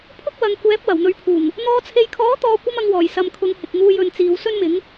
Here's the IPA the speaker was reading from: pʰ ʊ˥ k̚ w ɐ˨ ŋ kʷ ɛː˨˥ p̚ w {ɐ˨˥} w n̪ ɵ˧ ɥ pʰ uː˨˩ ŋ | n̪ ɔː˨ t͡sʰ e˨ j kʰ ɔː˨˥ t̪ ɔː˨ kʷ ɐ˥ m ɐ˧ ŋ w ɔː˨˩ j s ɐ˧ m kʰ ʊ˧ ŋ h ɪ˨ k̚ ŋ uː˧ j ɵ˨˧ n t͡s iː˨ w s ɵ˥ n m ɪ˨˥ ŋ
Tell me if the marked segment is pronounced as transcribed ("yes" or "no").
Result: no